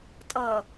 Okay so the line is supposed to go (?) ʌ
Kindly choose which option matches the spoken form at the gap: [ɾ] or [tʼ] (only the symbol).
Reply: tʼ